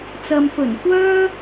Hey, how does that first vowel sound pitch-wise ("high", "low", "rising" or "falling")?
low